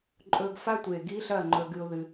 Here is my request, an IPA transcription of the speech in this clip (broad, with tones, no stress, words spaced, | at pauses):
ǃʼɵ˧ɡfa˦tʷe˨ ɡi˦ɬɐ˦˨ ŋ͡ǃɵ˧ɡɨ˧ʊ̯ ðɨ˧